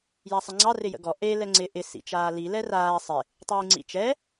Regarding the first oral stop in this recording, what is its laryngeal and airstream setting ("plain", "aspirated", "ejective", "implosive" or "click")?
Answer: click